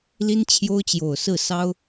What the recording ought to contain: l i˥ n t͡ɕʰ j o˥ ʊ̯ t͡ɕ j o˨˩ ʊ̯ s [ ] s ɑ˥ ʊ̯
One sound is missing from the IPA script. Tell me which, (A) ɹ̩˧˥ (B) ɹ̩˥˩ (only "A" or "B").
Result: B